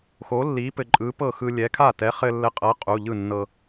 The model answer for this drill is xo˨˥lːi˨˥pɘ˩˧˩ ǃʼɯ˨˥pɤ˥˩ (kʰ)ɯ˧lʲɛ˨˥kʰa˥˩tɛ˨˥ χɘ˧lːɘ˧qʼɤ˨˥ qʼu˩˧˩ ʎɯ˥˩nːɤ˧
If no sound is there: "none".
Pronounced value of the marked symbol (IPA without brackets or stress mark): x